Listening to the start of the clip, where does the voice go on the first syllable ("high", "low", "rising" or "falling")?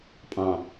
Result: low